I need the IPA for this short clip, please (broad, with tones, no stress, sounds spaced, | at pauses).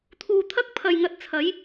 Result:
t̪ʰ uː˨ t̪ʰ ɐ˥ k̚ pʰ ɐ˨ j ŋ ɐ˧ t̚ t͡sʰ ɐ˨˥ j